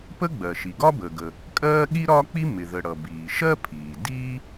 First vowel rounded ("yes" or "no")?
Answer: no